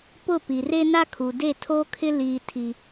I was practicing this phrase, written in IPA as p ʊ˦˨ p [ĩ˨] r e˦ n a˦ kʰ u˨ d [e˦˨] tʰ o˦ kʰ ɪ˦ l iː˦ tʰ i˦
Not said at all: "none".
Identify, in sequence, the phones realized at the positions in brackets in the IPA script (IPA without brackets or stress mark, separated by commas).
i˨, e˦˨